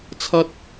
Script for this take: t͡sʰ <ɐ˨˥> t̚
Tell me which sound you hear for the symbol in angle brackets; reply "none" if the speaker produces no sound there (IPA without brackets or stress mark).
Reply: ɐ˥